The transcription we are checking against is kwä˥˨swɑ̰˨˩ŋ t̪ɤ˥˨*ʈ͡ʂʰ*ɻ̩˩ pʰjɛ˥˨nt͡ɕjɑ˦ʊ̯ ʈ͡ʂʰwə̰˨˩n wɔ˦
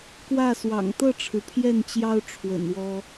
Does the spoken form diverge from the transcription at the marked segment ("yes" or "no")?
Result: no